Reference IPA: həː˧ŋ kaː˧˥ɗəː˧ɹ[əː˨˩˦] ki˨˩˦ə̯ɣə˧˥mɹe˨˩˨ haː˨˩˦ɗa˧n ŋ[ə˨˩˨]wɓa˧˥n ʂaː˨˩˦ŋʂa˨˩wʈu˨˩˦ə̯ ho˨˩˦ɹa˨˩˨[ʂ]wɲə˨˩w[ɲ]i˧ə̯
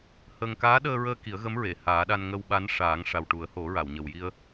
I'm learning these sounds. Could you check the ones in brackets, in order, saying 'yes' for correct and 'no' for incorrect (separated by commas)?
no, no, no, no